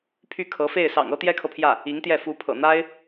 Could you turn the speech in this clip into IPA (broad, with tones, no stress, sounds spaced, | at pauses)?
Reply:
pʰ y˥˩ kʰ ɤ˧˥ f e˥˩ ɪ̯ s ɑ̰˨˩ ŋ ɤ˥ t̪ j ɛ˥ kʰ ɤ˨ pʰ j ä˥˩ | i˧˥ ŋ t̪ j ɛ˥˩ f u˧˥ pʰ ɤ̰˨˩ n̪ a˥ ɪ̯